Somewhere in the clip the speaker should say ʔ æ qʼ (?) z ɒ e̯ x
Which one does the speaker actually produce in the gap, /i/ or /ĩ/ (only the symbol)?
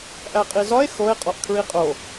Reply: i